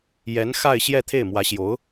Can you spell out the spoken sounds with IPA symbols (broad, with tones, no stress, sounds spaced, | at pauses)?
j ɛ˧˥ n x a˥˧ ɪ̯ ɕ j ɛ˥˧ t̪ʰ e˥˩ ɪ̯ m w ä˧˥ ɕ j o˧˥ ʊ̯